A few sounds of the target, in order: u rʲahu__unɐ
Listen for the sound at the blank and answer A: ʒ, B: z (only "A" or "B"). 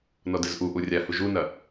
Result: A